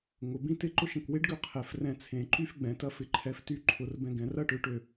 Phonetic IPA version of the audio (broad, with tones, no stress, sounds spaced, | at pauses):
ŋ ʊ˩˧ b ĩ˥˧ t ɪ˥˧ ǃ ʊ˥˧ ʃ ə̃˧˩ k w e˥ ɖ ɡ ø˥˧ qʰ ɛ˩˧ f r ɛ̃˧˩ t͡sʰ ẽ˩˧ ǃ y˥˧ f ɡ͡b ɛ̃˩˧ t ɐ˥ f ɪ˧ ǃʰ ɛ˧ f t y˥˧ ǃʰ ʊ˩˧ r b ɛ̃˧ ɡ ɛ̃˩˧ r ɐ˥˧ ʈ ø˧ ʈ ø˧˩